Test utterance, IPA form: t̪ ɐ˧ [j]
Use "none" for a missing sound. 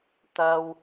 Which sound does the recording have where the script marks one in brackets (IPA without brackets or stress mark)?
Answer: w